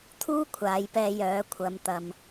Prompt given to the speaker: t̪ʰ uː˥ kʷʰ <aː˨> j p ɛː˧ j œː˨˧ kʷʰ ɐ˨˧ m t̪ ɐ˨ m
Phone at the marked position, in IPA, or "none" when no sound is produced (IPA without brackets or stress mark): aː˨˧